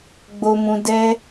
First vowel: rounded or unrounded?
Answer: rounded